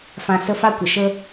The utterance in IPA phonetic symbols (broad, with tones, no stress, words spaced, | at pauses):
fã˨ sə˧ fa˦kʷə˨ʃə˦